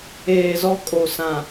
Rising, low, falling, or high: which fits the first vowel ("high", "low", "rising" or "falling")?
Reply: low